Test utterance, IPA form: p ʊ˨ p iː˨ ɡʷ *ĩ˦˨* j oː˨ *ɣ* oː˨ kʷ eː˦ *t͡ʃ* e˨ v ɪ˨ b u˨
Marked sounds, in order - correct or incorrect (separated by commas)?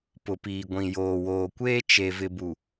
incorrect, incorrect, correct